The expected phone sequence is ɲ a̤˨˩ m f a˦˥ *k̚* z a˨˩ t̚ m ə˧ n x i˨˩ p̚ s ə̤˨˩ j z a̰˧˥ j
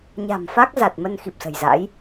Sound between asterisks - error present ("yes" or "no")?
no